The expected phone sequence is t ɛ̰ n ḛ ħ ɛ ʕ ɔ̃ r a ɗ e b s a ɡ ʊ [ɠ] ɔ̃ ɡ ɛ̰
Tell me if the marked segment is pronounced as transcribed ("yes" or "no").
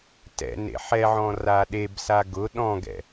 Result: no